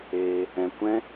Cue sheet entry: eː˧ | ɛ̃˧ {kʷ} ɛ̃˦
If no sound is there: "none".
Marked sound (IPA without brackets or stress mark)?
kʷ